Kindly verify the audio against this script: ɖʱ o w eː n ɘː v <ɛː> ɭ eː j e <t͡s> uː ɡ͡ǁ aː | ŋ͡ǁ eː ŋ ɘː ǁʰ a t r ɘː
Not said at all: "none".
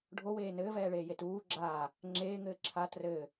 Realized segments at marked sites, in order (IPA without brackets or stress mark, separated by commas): ɛː, t